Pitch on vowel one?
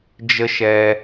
high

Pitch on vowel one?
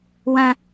high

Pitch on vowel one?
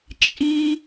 high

